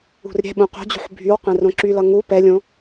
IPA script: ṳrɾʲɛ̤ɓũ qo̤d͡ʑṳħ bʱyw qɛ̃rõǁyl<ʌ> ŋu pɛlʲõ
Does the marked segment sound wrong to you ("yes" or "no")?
no